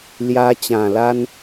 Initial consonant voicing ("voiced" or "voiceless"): voiced